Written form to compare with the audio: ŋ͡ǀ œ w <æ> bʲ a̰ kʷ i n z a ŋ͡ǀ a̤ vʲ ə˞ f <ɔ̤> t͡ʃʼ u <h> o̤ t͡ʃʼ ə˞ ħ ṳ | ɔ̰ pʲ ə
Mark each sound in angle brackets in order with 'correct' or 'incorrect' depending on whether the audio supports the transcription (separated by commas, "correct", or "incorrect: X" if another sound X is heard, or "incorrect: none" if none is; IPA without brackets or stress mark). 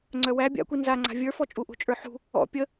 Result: correct, incorrect: ɔ, incorrect: ʔ